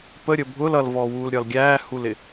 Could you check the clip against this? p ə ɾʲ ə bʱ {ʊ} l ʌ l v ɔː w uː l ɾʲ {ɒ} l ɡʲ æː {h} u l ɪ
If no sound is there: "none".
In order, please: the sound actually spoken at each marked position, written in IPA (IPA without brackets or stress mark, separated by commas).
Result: ʊ, ɒ, h